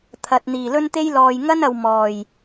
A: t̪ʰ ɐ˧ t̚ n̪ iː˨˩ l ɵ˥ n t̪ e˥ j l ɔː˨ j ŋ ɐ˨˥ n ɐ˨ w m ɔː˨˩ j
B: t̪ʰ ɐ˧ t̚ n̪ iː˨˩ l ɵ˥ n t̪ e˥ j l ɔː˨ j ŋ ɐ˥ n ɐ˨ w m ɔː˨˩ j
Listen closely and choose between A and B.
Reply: B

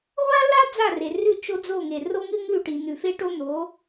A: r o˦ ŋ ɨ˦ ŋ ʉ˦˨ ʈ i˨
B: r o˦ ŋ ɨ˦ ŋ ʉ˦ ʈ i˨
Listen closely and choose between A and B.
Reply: A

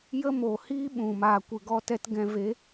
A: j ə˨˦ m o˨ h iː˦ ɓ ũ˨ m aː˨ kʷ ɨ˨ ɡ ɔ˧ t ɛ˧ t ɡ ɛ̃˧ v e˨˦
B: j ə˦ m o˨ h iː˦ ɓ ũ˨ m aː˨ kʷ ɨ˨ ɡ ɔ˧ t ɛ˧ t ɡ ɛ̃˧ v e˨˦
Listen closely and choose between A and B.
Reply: B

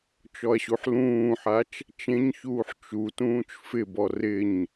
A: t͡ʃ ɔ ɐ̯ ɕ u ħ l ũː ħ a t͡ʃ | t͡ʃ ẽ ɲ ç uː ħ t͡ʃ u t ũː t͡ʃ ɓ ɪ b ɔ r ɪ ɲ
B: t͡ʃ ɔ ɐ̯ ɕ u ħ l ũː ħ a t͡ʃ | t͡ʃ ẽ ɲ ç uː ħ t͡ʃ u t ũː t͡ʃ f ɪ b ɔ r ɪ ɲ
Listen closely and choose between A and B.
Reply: B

